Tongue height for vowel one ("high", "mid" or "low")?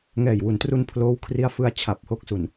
mid